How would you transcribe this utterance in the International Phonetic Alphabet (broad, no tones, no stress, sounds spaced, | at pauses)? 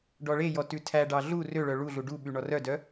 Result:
ɖ ɔ ɭ e j ɔ t ʉ tʰ æ ɖ ɑ ɮ u r ø ɭ œ ɭ u ɮ u ɖ u ɓ y ɳ ɔ r œ d œ